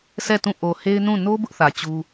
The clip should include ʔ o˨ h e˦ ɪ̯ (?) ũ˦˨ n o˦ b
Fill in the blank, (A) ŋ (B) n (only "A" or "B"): B